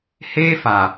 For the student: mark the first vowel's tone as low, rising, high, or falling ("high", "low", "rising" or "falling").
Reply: high